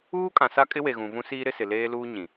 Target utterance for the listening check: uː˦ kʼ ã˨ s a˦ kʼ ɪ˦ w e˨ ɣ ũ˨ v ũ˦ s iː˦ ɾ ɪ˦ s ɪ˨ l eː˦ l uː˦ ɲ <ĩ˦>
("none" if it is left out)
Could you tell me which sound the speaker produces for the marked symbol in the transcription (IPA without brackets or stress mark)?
ĩ˨